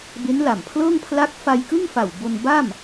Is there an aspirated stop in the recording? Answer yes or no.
yes